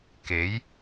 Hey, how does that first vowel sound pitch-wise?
rising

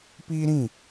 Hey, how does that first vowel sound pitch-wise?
high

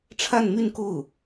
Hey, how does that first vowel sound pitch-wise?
falling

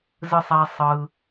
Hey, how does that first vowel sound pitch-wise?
high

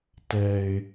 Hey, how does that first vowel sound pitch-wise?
high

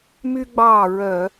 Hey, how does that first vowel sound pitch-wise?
high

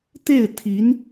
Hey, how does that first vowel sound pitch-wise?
falling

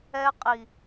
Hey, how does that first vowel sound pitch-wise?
high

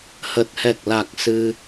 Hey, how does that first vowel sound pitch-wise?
low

